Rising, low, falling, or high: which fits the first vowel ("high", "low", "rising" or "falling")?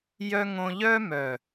high